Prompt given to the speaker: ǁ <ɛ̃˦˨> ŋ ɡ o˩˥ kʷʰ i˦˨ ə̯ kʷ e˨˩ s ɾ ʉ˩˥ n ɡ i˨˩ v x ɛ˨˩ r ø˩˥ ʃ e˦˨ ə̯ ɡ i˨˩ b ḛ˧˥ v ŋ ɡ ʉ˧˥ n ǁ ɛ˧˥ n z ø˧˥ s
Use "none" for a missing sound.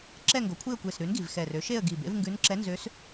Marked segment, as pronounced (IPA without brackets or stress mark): ɛ˦˨